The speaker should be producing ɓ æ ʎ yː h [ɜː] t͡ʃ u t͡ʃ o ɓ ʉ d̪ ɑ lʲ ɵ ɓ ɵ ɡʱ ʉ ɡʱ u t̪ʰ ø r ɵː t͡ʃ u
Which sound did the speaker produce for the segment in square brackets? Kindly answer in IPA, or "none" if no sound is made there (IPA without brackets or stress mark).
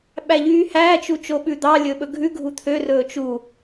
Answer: æː